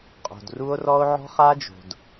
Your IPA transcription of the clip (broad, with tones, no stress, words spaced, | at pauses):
qʼo̤˨dru˦o̯rɔ˦o̯ ʕɔ̤˦χa˦d͡ʒo̤˨d